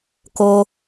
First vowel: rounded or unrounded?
rounded